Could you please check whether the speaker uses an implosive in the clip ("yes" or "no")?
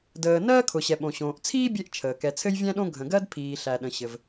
yes